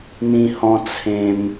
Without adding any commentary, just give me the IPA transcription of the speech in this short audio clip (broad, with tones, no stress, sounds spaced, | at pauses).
n̪ ĩ˧ h ɔ̃˧ t͡sʰ ẽ˧ m